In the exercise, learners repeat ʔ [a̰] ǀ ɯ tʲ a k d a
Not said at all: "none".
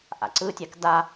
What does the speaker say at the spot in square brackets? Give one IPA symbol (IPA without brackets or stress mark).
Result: a̰